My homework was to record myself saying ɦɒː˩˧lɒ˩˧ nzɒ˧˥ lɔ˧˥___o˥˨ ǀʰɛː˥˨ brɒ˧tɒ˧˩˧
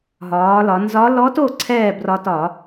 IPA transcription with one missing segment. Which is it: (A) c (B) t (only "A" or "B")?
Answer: B